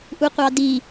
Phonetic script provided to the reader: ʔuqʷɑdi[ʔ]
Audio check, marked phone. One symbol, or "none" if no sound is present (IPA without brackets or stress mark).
none